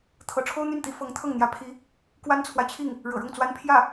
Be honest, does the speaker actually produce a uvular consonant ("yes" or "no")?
no